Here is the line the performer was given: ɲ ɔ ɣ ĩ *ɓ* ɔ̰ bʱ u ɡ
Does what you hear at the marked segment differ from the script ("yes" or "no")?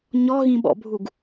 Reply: no